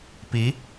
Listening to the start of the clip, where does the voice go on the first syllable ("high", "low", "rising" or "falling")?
rising